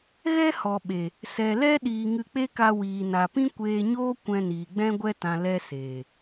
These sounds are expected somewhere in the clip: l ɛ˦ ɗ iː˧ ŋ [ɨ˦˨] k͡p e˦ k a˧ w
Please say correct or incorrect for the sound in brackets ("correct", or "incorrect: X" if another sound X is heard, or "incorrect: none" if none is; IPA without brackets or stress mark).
incorrect: ɨ˧